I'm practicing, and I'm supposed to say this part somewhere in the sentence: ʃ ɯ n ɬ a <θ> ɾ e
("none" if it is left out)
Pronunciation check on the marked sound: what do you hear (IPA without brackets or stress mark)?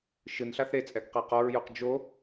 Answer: θ